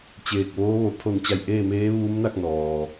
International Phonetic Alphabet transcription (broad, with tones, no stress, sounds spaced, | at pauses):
t͡ɕ eː˧˩ k̚ ʋ oː˧˥ ʋ o˩ pʰ o˧˩ n t͡ɕ a˧˩ j ʔ eː˥˨ m eː˧˥ ʋ uː˧˥ m n a˥˨ k̚ n ɔː˩